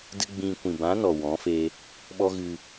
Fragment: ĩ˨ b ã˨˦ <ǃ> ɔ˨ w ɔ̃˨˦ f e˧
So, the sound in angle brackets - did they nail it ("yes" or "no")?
no